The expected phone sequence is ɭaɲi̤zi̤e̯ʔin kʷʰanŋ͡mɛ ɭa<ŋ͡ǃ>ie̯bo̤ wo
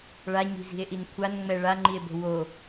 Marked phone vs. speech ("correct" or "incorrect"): correct